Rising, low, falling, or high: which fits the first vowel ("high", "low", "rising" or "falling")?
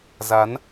rising